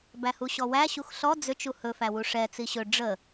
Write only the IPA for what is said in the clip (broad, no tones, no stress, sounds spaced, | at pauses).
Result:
b æ h u ɕ ɔ w æ ɕ u x ɬ ɔ d͡z ʏ t͡ʃ u h ɵ f æ w u ʂ ɛ t͡s i ɕ ɵ ɖ͡ʐ ə